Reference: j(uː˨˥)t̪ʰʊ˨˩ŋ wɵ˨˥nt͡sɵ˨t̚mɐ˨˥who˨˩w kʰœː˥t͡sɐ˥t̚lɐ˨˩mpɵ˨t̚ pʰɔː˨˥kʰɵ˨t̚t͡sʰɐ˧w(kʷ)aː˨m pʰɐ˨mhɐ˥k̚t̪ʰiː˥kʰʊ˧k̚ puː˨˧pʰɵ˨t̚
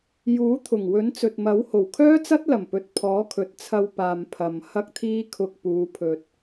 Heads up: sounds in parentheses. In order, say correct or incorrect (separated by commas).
correct, incorrect